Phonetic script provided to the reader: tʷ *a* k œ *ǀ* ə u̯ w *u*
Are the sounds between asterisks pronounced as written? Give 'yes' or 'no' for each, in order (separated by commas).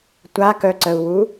yes, yes, yes